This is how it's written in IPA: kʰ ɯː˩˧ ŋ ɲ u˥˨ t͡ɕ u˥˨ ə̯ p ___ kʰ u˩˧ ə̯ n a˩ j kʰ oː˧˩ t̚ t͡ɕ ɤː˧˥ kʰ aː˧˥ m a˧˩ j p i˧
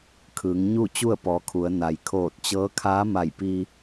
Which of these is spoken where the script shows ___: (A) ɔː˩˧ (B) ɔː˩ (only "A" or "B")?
A